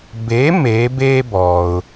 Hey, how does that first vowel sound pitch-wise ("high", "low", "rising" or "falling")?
rising